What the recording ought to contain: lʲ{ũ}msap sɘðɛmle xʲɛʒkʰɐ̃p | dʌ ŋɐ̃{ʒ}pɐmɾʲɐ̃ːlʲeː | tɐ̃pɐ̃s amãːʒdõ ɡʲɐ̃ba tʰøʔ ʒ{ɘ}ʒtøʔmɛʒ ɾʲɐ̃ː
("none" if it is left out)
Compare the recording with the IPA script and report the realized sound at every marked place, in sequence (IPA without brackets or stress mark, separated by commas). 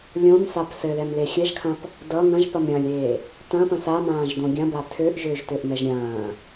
õ, ʒ, ø